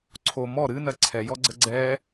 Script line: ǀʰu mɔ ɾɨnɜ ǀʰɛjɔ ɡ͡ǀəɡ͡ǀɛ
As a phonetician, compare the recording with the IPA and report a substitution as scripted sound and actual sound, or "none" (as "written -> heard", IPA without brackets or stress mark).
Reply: u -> o